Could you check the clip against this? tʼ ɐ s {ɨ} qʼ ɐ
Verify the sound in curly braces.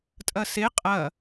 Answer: incorrect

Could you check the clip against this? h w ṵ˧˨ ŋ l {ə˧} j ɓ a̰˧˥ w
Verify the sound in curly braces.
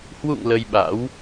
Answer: correct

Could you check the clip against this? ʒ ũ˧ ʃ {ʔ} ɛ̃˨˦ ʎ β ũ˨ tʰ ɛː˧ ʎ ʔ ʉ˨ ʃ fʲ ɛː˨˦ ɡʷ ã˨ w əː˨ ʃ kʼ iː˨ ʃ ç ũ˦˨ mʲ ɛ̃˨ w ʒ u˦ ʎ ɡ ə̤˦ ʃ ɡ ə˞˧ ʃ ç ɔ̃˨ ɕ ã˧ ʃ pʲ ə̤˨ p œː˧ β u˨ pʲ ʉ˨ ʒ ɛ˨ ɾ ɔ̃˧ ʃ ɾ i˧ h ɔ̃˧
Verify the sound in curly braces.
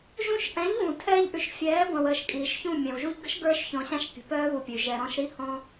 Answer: correct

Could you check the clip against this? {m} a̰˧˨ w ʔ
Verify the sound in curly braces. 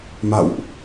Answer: correct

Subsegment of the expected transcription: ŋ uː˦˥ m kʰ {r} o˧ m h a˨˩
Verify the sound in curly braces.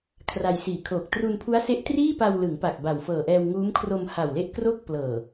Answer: correct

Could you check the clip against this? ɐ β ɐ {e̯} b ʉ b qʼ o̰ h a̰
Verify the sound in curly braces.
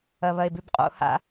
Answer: correct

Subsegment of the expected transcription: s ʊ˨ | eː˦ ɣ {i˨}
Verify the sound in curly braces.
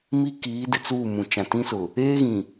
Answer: incorrect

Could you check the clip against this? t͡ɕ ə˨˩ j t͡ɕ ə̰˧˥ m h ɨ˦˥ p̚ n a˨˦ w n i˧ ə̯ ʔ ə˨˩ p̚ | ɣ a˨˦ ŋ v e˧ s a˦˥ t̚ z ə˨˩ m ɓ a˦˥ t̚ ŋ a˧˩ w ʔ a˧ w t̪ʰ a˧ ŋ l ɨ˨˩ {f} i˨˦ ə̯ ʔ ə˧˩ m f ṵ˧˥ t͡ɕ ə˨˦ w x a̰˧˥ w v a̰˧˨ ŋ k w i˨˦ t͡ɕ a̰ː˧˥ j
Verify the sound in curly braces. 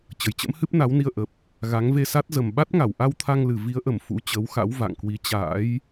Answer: incorrect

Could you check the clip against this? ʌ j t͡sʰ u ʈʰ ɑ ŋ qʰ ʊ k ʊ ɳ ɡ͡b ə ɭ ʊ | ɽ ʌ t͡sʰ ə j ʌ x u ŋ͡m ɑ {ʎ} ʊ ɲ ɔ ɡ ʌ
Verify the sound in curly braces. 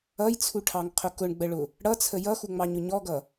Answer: incorrect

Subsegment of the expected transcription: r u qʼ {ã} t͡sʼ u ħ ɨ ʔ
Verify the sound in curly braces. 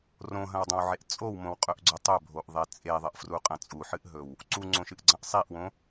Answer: incorrect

